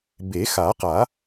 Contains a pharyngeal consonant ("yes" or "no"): no